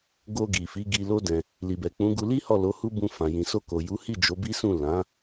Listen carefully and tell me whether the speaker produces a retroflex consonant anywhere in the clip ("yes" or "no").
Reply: no